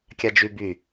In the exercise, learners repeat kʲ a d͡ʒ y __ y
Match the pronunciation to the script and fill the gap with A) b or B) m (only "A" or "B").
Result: A